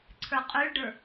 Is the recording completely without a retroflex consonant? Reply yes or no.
no